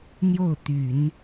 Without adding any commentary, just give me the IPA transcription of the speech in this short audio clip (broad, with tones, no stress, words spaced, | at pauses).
n̪jo˥˩ʊ̯t̪y˨˩˦n